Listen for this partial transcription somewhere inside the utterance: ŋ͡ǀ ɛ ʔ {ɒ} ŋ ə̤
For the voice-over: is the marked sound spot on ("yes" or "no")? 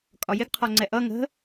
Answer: no